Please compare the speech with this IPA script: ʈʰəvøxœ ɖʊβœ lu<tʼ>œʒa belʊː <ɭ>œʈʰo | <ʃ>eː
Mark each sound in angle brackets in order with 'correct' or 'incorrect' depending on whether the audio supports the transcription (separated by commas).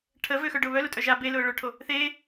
correct, correct, incorrect